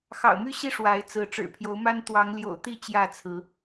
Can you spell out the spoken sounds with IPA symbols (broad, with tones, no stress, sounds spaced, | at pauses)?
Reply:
x ɑ̰˨˩ ʊ̯ m y˦ ɕ i˦ ʂ w a˨˦ ɪ̯ t͡s ɹ̩˨˦ ʈ͡ʂ ɻ̩˨˩ pʰ j o˨˦ ʊ̯ m a˦ n t̪ w ɑ˨˦ ŋ l j o̰˨˩ ʊ̯ t̪ i˥˨ t͡ɕ j ä˥˨ t͡sʰ ɹ̩˨˦